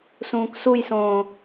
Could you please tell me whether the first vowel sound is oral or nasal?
nasal